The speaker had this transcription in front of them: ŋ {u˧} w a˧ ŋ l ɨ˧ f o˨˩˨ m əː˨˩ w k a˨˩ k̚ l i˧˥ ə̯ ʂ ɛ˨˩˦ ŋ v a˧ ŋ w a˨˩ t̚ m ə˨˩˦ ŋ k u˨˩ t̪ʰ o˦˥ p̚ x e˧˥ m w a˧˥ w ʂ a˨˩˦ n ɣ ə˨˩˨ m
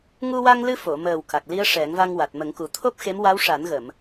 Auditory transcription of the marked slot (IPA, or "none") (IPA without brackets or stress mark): u˧